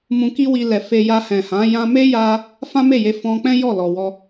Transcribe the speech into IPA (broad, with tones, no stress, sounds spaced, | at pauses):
m ũ˧ k i˦ w i˧ l ɛ˨ f e˧ j a˧ h ɛ̃˨ h ã˨˦ j ã˧ m e˦ j a˧ | f ã˦ m e˦˨ j e˧ f ɔ̃˧ k͡p ɛ̃˦ j ɔ˦˨ l ɔ˨ w ɔ˧